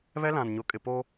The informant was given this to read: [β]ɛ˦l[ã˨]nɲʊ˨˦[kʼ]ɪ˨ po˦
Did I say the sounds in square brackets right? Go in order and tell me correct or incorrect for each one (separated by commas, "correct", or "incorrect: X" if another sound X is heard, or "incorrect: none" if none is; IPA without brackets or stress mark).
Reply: correct, correct, correct